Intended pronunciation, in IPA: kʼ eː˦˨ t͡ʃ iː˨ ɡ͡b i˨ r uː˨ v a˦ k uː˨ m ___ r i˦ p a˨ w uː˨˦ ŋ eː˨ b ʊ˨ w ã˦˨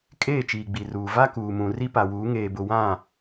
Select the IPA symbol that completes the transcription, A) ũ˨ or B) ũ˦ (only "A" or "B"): A